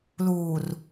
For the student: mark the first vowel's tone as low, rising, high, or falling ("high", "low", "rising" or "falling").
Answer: low